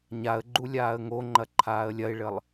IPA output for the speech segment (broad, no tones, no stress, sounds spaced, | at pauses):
ɲ a ə̯ ɡ͡ǃ u lʲ aː ə̯ ŋ o ŋ͡ǃ ɐ ǃʰ aː ə̯ lʲ ɐ ɪ̯ ɭ ɘ lˠ